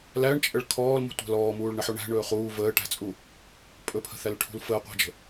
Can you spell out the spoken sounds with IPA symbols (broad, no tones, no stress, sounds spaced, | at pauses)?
l æ ɳ t͡ʃʼ ə ɭ kʰ ɔː l m ṳ tʷ æ̤ l ɔː m uː ɭ ɳ ə ħ o ɳ æ̤ ɳ ɵː χ uː v əː ʈ æ̤ t͡sʼ u | pʼ ɵ pʰ ə̤ θ æ l ʈʰ ṳ l f əː qʷ æ̤ d͡ʒ ə̤